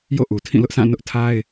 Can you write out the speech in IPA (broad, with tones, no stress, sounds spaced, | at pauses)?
j o̰˦˨ ʔ u˨ tʰ ĩ˦˨ l ʊ˦ ʔ s ã˦˨ n ʊ˦ ʔ tʰ a˦ ɪ̯